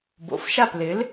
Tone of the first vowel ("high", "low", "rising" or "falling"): low